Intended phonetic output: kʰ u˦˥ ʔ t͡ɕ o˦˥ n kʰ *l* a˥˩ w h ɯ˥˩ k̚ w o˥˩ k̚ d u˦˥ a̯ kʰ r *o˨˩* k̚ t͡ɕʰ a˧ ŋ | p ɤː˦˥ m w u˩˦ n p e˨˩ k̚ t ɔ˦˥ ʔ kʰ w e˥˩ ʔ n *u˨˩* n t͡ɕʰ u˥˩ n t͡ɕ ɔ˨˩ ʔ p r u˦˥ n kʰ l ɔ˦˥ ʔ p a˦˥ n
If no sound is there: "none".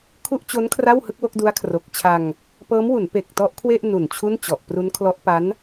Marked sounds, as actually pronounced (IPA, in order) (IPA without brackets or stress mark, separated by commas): r, o˨˩, u˨˩